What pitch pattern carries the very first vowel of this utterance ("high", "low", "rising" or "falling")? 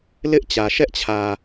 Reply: high